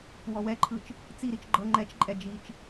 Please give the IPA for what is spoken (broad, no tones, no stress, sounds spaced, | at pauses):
w ɔ w ɛ ǃʰ ɯ t͡ʃ | t͡s i ɾ i t͡ʃ ɡ͡ǃ ɤ ŋ͡ǃ ɛ t͡ʃ ǃʼ ɛ d͡ʒ i t͡ʃ